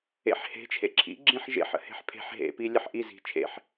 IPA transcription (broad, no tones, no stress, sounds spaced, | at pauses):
ḛ ħ h e̤ t͡ʃʰ ḛ ǁʰ ḭ ɡ͡ǁ ĩ ħ ʒ ḛ ħ ə̰ h e̤ ħ pʰ e̤ ħ ɦ ḛ p i lʲ ə ħ ʔ i z i̤ t͡ʃʰ ḛ ħ